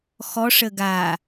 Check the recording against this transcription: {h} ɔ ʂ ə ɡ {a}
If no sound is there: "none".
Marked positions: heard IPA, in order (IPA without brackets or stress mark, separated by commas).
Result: x, a